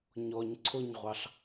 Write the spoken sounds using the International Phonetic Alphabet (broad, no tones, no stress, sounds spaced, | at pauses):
ɲ ɔ ɲ ǀʰ ʊ ɲ ʁʷ ɑ ɬ